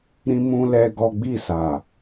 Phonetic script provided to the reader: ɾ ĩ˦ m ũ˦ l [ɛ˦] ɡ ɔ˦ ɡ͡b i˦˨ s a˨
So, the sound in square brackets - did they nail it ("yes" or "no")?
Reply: yes